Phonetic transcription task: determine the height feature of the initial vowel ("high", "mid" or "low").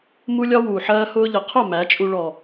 high